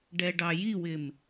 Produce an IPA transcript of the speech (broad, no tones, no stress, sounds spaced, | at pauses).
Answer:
ɖ ɛ ɖ ɑ j i w ɪ m